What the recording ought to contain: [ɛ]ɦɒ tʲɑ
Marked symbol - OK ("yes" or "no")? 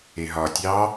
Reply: no